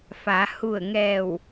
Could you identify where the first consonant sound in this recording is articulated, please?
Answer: labial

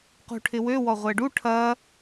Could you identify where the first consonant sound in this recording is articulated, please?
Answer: uvular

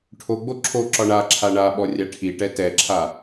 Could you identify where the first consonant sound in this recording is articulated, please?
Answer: retroflex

